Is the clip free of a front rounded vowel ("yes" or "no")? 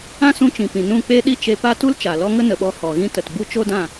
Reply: yes